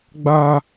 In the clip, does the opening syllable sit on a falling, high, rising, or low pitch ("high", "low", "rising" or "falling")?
high